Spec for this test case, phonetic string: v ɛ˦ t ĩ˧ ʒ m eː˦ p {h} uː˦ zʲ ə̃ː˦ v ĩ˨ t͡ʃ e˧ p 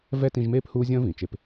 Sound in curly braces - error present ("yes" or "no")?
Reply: no